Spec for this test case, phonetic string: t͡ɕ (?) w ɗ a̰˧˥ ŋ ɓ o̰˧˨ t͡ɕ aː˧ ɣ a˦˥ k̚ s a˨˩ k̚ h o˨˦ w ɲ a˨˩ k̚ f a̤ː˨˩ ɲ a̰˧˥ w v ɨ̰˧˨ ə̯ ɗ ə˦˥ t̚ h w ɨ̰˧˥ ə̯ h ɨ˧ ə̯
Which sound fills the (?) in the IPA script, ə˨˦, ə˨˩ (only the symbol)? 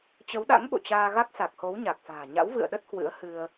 ə˨˦